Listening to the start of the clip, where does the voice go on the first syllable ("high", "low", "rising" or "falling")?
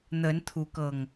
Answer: rising